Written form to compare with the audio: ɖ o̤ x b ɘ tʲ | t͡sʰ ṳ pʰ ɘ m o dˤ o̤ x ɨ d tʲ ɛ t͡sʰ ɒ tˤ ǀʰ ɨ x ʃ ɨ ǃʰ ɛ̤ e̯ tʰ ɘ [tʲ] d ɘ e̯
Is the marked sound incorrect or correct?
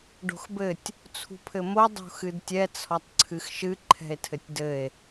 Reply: correct